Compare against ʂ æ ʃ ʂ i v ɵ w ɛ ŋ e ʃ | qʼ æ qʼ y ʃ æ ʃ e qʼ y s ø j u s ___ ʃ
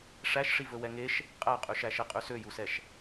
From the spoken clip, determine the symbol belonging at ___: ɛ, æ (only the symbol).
ɛ